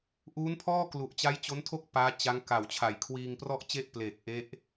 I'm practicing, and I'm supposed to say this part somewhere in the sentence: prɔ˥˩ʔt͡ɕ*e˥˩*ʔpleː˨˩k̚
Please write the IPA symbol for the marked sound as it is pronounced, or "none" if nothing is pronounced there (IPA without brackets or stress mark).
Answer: e˥˩